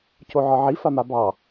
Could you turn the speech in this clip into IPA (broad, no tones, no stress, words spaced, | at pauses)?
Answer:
cʰoʕɒʕi famabɑ